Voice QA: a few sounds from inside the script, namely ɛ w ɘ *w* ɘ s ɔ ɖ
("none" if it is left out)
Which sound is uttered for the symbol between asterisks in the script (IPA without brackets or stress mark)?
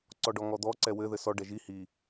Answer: ð